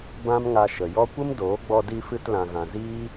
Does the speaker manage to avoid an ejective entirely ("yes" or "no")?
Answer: yes